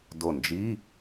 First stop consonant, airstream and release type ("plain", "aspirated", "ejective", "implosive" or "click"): plain